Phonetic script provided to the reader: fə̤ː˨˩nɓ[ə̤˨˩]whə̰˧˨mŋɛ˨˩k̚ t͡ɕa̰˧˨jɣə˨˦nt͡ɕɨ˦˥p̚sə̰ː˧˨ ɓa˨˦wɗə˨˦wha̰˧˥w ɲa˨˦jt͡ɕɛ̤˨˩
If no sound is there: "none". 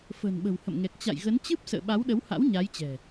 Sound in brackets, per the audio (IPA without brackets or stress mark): ə̤˨˩